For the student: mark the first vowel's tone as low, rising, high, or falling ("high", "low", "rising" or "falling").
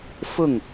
falling